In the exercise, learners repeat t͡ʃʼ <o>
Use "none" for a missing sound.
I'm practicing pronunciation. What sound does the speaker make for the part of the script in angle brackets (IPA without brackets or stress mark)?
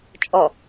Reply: ɔ